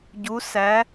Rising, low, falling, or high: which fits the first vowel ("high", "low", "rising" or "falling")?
rising